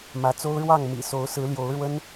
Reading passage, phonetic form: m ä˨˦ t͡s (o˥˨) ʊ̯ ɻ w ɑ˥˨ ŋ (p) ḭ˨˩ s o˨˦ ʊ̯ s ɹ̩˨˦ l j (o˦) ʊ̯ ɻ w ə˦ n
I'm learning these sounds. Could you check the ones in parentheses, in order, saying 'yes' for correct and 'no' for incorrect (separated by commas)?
no, no, no